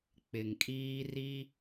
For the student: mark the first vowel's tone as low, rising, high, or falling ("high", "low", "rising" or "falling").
low